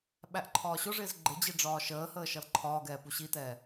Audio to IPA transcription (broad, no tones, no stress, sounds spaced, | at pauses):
ɓ æ ʔ ǃʰ ɒː ɕ ʊ ʐ ɪː z ɡ͡ǃ ɪ d͡ʑ i ɖ͡ʐ ɒː ʃ əː h əː ʃ ʌ l ǃʰ ɒː ɡ ɛː p u ɕ i t ɛː